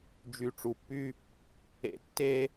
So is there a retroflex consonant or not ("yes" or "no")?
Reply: yes